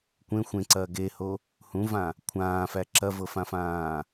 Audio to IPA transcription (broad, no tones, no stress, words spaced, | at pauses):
kʷẽ xʷẽǀɐː ɡeho | hũvã | kʷʰãːfæ ǁɐvɤfãfãː